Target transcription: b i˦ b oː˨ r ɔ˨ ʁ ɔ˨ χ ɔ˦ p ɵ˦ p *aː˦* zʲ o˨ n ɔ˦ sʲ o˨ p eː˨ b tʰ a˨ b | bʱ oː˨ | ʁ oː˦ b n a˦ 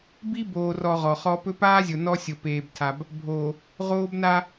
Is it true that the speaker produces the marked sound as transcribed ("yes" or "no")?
yes